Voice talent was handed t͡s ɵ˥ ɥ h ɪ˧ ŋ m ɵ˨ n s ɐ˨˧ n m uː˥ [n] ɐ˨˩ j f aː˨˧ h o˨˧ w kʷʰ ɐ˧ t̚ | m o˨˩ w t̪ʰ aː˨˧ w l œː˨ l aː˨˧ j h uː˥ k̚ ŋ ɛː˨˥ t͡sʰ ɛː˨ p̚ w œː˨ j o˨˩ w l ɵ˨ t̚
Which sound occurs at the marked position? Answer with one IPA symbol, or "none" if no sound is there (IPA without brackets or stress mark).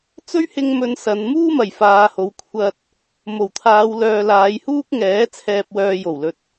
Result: m